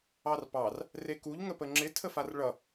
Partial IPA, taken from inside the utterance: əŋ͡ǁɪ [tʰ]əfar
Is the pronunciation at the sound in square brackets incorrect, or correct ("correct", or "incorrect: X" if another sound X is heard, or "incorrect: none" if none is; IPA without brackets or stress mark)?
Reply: correct